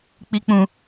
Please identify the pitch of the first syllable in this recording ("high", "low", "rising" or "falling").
low